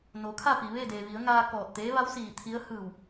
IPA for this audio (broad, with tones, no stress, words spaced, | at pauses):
no˩˧kʰa˥˨pi˩ ʋe˥˨de˩ ʋi˩˧ə̯ŋaː˧ kɔː˧˩t̚t̪eː˧˥ ʋa˧˥w siː˧˩t̪ʰi˧˥ə̯ hɯː˧˩w